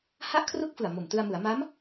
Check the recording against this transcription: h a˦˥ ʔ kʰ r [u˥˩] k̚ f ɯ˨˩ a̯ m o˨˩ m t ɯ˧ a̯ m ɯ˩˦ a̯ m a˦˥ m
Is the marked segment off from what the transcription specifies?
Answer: yes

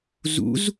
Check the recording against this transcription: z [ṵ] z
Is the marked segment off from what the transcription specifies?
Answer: no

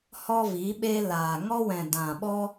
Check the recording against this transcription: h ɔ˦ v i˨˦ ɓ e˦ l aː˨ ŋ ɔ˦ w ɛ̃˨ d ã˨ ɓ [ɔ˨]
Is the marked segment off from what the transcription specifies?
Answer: yes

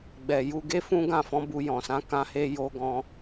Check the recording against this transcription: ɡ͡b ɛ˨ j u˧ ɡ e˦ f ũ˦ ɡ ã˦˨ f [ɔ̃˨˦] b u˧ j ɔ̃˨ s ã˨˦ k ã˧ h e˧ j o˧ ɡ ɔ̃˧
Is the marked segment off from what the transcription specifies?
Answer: no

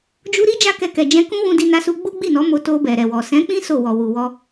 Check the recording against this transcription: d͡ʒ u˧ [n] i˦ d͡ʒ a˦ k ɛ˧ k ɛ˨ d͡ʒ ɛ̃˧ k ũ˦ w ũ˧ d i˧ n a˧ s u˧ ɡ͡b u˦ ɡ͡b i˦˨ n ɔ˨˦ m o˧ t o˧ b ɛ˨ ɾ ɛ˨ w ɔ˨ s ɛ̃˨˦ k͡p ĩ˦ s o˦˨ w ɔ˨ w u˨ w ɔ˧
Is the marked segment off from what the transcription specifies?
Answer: yes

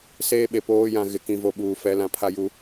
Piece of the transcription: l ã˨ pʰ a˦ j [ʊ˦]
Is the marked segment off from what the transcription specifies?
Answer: yes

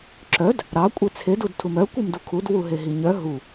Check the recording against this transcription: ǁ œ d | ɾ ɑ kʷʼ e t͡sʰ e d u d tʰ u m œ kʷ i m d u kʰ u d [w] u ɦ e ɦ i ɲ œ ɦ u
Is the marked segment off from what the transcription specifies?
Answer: no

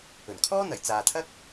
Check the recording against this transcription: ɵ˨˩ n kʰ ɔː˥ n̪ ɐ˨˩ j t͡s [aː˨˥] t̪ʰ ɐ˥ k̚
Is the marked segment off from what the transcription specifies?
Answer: yes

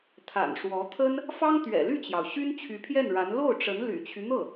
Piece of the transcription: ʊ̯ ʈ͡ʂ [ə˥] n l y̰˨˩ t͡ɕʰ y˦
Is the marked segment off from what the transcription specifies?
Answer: yes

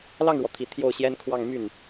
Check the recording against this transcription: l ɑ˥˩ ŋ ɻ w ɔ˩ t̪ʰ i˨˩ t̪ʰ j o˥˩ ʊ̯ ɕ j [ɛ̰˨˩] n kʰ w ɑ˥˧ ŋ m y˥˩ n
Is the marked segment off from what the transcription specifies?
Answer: yes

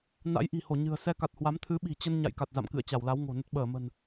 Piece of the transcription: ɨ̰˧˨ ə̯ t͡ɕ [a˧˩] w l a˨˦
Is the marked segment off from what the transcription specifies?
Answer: no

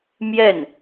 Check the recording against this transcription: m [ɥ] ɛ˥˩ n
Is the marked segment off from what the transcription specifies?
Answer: yes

